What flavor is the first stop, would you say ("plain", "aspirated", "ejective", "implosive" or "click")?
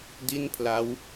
plain